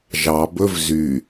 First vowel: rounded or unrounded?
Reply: unrounded